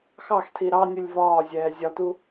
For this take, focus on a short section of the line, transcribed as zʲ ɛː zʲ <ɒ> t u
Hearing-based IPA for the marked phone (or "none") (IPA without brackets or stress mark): ɒ